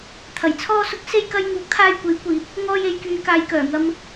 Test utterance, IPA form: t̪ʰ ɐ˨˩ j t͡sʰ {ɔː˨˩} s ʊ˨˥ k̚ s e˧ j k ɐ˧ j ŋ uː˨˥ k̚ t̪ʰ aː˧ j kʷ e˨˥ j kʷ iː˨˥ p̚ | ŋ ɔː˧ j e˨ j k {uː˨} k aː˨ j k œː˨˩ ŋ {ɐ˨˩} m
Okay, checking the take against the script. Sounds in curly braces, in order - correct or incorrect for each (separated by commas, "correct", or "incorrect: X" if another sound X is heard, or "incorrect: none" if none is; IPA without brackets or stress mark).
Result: incorrect: ɔː˧, incorrect: yː˨, incorrect: ɐ˧